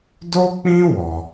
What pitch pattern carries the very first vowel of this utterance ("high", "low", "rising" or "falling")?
high